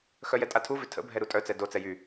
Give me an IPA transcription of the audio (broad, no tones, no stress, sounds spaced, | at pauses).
x œ j ɛ tʼ a tʰ u v ʏ tʰ ə̰ bʱ ɛ ɾ u tʼ œ t͡s ɛ d o t͡s ɛ j y